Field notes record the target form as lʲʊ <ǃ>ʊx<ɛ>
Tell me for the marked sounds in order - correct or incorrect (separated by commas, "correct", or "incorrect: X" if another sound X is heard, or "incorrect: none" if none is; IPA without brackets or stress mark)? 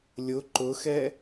correct, correct